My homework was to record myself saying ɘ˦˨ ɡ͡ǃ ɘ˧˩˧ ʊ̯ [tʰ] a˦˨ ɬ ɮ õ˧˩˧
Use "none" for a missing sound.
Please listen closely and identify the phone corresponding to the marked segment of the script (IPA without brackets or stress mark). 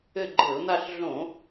n̪